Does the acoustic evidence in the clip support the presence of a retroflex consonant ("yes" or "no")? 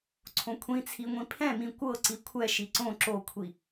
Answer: no